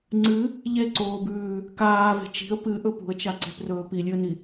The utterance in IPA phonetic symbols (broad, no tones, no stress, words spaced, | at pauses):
ŋ͡ǀɨ | ʎeǀoːbʉː | kaːve̤ t͡ʃi̤ə̯ pɨʔɵ pṳə̯t͡ʃaǀe̤prɵː pilʲɨə̯ni